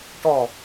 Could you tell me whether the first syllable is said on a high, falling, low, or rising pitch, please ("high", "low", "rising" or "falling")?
falling